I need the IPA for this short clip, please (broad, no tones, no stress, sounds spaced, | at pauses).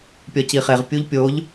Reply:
pʲ ɒ c i χ e ʁ pʲ u ʎ pʲ o ʎ